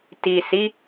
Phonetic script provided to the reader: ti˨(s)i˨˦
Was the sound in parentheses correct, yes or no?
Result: yes